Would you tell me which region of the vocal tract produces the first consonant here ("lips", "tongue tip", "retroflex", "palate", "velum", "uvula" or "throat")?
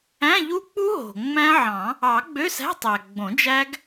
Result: palate